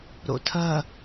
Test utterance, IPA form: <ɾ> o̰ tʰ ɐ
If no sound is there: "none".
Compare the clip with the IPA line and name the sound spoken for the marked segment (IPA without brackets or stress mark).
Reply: ɾ